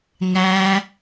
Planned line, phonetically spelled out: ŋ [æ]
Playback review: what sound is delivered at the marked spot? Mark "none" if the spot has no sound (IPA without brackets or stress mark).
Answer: æ